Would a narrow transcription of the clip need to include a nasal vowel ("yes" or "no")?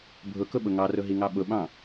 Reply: yes